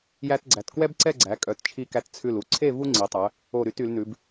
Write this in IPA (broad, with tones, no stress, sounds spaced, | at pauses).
j æ˧ t ɡ͡ǀ æ˩˧ t k w ɛ˥ b ǀ ɛ˥˧ ɡ͡ǀ æ˩˧ kʼ œ˩˧ t t͡ʃʰ i˧ k æ˧ t t͡sʰ ʉ˧˩ l u˧ ǀʰ e˥˧ v u˥ ŋ͡ǀ i˩˧ tˤ œ˩˧ | o˧˩ ɾ y˧ t y˩˧ l n ʉ˩˧ b